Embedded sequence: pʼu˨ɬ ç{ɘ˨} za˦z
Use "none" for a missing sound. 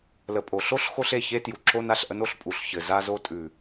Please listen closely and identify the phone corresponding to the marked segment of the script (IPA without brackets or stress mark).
ɘ˨